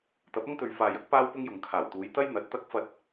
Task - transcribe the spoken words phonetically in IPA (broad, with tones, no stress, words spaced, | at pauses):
t̪ɐ˨˥p̚ɐ˥ŋt̪ɵ˨ɥ faː˨jɐ˥k̚ paː˥wpʊ˥ŋjʊ˨ŋ kʰaː˨˩wt̪uː˨˧j t̪ɐ˥j n̪ɐ˨˥t̚t̪ɐ˥k̚ fɐ˧t̚